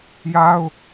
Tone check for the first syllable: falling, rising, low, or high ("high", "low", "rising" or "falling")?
high